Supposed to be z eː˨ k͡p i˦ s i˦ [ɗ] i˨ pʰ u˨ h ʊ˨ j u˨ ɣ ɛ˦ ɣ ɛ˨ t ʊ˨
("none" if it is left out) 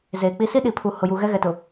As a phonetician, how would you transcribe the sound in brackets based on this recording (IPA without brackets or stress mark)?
ɗ